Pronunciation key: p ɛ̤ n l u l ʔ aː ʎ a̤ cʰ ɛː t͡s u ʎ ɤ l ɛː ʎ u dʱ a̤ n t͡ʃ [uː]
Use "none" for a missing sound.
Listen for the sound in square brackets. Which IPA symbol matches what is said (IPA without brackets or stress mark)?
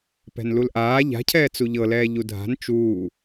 uː